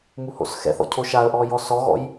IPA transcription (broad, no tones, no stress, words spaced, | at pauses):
muho̰sxɛ̰θɔ̰ cʰoʃaə̯ʔɔ jɔsɔɣɔ̰j